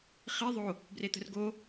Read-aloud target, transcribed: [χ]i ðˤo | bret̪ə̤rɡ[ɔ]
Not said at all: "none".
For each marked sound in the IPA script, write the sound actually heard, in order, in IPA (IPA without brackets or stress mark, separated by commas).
χ, o